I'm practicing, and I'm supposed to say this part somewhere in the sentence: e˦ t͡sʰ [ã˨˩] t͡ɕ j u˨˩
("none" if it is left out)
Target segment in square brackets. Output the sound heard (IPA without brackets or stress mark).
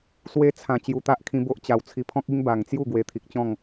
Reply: ã˨˩